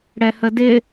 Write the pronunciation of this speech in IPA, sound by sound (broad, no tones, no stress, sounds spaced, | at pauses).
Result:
ɽ ɛ h ə d ɪ